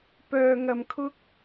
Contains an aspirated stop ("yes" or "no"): yes